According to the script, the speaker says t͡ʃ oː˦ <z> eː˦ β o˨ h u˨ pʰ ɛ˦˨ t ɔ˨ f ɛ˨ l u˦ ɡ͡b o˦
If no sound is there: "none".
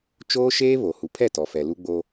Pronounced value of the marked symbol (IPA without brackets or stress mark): ʃ